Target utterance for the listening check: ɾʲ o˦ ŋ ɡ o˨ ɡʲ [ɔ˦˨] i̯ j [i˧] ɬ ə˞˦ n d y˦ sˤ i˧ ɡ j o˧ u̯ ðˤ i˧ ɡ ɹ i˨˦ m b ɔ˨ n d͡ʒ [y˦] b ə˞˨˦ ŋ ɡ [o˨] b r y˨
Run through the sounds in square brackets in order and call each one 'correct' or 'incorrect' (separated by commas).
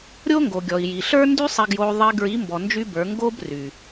incorrect, incorrect, correct, incorrect